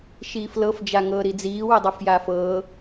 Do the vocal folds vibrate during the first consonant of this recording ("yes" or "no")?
no